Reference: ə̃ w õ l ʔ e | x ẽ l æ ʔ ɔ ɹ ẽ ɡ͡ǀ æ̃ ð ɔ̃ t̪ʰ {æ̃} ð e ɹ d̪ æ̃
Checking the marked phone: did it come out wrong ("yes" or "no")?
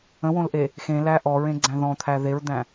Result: yes